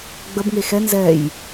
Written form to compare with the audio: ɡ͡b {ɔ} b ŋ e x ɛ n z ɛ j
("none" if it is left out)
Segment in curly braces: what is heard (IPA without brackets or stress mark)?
ə